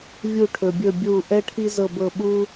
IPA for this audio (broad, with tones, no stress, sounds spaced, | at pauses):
vʲ u˥˧ ʈʰ ɵ˧ bʲ ɵ˥˧ bʲ u˥˧ ʔ ɛ˥ ʈʰ i˥ z ɤ˥˧ b ɤ˥˧ ɓ u˥